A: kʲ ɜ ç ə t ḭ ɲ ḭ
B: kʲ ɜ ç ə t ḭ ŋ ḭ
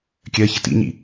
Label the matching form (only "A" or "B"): A